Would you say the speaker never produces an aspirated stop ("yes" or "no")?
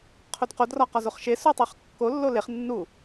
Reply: no